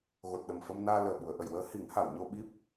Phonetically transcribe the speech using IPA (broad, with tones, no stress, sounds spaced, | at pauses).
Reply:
ɣ o˨˩ t̚ ɗ ə˨˩ m f ə˧ m n aː˧ l əː˨˩ ɓ u˨˩˨ ə̯ ʔ ə˨˩˨ j w əː˧˥ h i˨˩˦ ŋ h a˨˩˨ w ɲ o˧ ɓ i˦˥ p̚